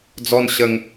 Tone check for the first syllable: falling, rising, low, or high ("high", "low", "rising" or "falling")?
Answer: high